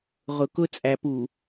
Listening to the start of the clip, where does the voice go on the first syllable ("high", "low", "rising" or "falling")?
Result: low